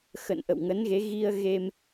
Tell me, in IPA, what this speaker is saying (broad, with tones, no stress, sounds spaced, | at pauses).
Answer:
x ə̰˧˨ n ʔ ə̰˧˨ w ŋ ə˨˦ n ɣ e˨˦ ɣ i˧ ə̯ ɣ e˧ m